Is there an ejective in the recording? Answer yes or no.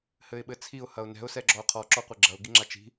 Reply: no